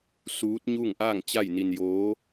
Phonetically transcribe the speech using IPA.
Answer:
s uː˧˥ t̚ ɲ uː˥˨ ŋ ʔ aː˥˨ ŋ t͡ɕ a˥˨ j n i˧ n j oː˧˥

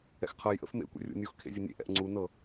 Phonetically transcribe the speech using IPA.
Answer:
ɛ̰ x qʰ ɤ j ʔ ə̰ f m ḛ kʷ ḛ rʲ ṵ nʲ u x kʰ ḛ zʲ ə nʲ ḛ ʔ ɛ̰ ʔ ŋ͡ǀ u n ɤ

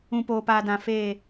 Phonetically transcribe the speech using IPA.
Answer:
ũ˨ p oː˨ p aː˨ d ã˨ f eː˦˨

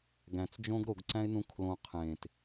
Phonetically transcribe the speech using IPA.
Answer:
ɡ æ̃ t͡s d͡ʒ õ ɡ ɾ o ɡ ǀ æ̃ ɪ̯ n ũ kʰ l õ qʰ ẽː t

